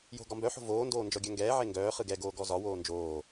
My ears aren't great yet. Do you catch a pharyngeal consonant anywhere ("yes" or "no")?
yes